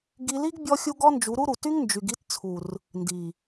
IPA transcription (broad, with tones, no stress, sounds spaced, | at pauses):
ɡ i˧ l i˦ ɡ bʲ ɔ˦ xʲ u˦ ɡ ɔ˦ n d͡ʒ u˨˦ ɾ u˦ ɾ u˨ t y˦ ŋ n d͡ʒ y˨ ɡ i˧ t t͡sʰ u˨ r | n d i˨